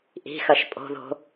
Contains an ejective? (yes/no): yes